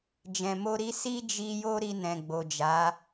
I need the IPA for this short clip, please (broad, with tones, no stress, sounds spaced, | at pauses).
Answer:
d͡ʒ ɛ̃˨ m o˧ ɾ i˧ s i˦ d͡ʒ i˧ j o˦ ɾ i˧ n ɛ̃˨ ɡ͡b o˨ d͡ʒ a˨˦